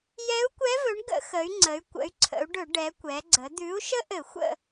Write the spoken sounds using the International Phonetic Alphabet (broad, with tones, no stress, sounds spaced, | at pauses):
j ɛ˧˥ u̯ kʷ ɛ˧˥ v ɵ˩˥ ɳ ɡ ə̰˧˩˧ x ə˩˧ y̯ ŋ͡ǀ ə˩˧ y̯ kʷ ə̰˩˧ y̯ ǀʰ ə̰˩˧ u̯ ɖ ɵ˧˩˧ ɖ ɛ˩˧ kʷ ɛ˩˧ ɡ͡ǀ ə˩˧ d̪ ʉ˩˥ u̯ ʃ ə˥ ʔ ɘ˧˩˧ xʷ ə̰˦˨